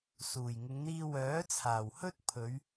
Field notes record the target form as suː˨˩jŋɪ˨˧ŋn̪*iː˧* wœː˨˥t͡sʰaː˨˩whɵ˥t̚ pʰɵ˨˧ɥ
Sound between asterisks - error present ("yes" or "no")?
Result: no